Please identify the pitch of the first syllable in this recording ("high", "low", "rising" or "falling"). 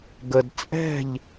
low